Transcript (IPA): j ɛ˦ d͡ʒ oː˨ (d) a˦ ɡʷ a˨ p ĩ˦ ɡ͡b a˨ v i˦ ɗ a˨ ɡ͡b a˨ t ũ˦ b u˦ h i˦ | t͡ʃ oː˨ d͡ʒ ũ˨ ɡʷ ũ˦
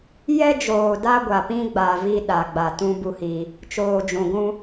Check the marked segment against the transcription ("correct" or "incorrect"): correct